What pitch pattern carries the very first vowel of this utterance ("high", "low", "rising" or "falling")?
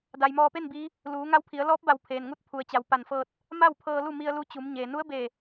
low